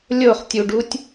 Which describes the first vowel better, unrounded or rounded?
rounded